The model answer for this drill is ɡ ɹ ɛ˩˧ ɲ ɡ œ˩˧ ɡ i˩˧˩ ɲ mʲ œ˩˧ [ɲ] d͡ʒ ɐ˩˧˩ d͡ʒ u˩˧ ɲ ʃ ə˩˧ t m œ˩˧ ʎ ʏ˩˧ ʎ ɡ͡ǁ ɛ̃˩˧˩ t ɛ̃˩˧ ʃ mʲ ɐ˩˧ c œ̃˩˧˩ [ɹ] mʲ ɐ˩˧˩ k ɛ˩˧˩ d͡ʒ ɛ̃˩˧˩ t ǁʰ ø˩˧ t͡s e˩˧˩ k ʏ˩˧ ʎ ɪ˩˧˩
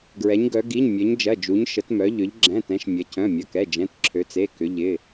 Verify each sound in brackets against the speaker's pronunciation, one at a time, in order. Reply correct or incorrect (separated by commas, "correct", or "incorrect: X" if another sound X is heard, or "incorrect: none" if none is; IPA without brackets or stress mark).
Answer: correct, incorrect: none